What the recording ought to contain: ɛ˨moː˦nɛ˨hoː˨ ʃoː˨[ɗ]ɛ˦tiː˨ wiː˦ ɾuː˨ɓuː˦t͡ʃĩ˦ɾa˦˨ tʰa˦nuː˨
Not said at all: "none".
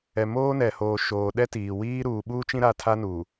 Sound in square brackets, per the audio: ɗ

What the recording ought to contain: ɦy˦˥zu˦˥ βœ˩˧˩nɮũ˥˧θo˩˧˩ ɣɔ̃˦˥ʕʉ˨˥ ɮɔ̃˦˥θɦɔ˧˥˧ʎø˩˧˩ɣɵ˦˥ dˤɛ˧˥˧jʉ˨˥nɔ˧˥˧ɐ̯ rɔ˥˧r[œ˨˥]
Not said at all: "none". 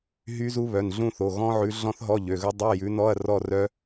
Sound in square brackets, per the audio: œ˦˥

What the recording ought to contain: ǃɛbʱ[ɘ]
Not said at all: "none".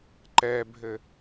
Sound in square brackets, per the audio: ɘ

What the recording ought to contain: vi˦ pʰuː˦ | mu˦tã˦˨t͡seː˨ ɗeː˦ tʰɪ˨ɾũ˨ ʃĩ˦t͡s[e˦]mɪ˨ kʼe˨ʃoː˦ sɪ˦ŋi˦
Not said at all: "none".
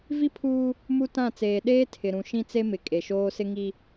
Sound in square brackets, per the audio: e˦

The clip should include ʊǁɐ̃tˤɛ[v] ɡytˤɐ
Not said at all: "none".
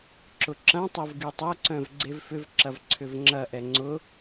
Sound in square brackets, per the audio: v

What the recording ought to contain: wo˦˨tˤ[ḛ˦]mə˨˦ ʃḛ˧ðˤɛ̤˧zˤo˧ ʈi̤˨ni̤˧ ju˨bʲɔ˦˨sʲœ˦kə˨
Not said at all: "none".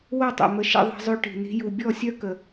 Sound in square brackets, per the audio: ḛ˨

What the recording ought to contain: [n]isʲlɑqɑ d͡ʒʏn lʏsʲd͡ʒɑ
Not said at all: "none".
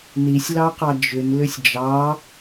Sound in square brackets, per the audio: n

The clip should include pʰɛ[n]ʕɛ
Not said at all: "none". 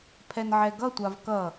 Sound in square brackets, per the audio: n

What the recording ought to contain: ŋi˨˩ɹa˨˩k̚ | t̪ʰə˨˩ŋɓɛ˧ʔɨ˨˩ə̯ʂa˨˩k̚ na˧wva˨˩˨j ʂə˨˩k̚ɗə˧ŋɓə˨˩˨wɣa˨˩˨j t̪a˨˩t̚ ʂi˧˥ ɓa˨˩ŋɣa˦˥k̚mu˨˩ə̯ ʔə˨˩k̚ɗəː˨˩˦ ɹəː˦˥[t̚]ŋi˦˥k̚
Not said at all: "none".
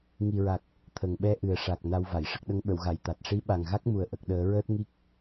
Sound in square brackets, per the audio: t̚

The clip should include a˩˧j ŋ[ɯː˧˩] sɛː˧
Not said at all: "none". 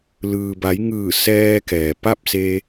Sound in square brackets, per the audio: ɯː˧˩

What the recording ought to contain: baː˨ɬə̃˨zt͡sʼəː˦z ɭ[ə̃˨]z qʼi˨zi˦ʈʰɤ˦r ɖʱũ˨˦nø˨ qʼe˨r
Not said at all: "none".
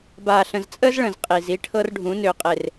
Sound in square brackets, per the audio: ə̃˨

